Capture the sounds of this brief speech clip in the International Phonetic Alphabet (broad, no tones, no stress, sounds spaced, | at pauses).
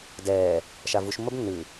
d ɛː | ʃ a v u ʃ mː ə b nː ʉ